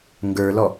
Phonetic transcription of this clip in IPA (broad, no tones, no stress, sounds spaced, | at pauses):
ŋ ɡ ə˞ l ɔ